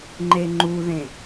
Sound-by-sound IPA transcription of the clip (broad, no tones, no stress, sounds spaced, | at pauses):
ŋ͡ǃ e ŋ͡ǃ u ð ẽ